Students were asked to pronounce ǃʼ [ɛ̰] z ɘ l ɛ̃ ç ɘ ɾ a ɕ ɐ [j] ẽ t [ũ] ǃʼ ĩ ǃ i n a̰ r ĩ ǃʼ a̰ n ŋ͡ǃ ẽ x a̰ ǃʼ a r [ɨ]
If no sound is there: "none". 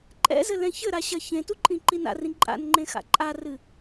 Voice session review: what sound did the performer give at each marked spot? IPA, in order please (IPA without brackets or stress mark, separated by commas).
ɛ̰, ç, u, ɨ